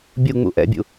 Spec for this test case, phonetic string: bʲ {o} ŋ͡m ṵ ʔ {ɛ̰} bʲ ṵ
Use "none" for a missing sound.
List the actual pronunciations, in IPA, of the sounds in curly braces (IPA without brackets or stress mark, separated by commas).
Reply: u, ɛ̰